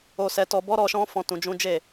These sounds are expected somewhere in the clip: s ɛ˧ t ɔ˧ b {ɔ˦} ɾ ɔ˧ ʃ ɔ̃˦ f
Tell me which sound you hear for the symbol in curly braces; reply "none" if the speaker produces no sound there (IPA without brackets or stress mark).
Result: ɔ˦